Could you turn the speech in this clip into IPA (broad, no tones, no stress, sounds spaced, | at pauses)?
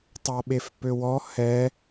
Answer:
tˤ a ɓ e f p ø w ɔ h ɛ